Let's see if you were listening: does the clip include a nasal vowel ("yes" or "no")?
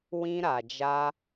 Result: yes